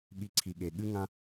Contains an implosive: yes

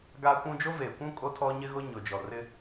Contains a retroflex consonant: no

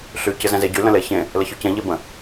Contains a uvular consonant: no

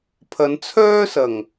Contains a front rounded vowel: yes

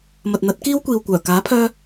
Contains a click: no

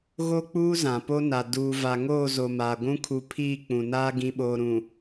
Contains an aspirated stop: yes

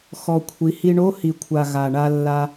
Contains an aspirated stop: yes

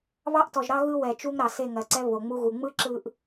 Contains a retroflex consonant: no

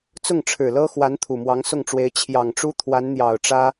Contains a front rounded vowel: no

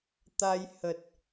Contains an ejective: no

